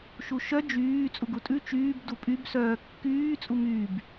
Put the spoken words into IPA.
ʃuʃœ d͡ʒyː t͡sʼuɡutʼʉ t͡ʃyːb dupʼybsœː kːyː t͡sʼumyːb

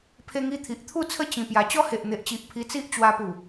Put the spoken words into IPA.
pʰe˧ŋi˧t̪ʰi˨ʔ t̪ʰu˥˧t͡sʰə˦ t͡ɕĩ˨˩pja˨˩ t͡ɕɔ˦he˨ʔn̪e˨ʔt͡ɕi˨ʔ pʰi˧t͡si˦ʔt͡ɕwa˧pu˨˩

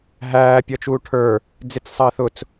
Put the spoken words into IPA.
ɦæː pʲʌt͡ʃuːʈʰə˞ | d͡zɪt͡ssˤəːθʊt͡s

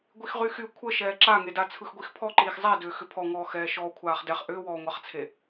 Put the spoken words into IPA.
ɡʷixʁyxy kʷʰə ʃɛːǁaŋeda t͡sʰɯxɡʷixpʰɔǃiːx zˤɛdʏː xʏpʰɔŋɔː xɛːʃɔːkʷʰaːχdɛχ ʔʏːwɔːŋʷaχt͡sʰe

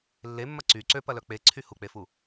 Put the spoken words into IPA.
lːemːɐ ǀy ǀøpɐlœ k͡peǀʰy huk͡pefu

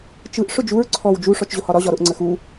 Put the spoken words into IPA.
t͡ʃɯʔ ʂʊd͡ʒuɹ ǀʰɔw d͡ʒu ʂɔt͡ʃʑʊhɒɾɒ ʑɒɾʊʔ ŋ͡ǀəxu

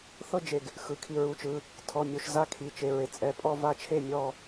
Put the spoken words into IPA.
θɤ˥˧ d͡ʒe˧˩ɡ | xɯ˩˧˩kʰi˧˩ ɹu˩˧˩t͡ʃɯ˩˧˩ | tʰɔ˩˧˩mʲo˧˩ʃ za˥˧kʰi˩˧˩t͡ʃe˩˧˩ɹe˩ t͡sʼɛ˧˩pʼɔ˥˧va˥˧t͡ʃʰe˥˩ mʲɔ˥˧

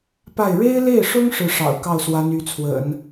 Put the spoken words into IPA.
pa˥˩ɪ̯ ɻe˥ɪ̯le˥˩ɪ̯ʂʊ˥ŋ ʂɻ̩˥˩ʂɑ̰˨˩ʊ̯ kɑ˥˩ʊ̯swa˧˥ny˧˥t͡sʰwə̰˨˩˦n

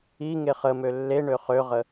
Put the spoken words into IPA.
iŋe χəmø lːeɳø χøʁə

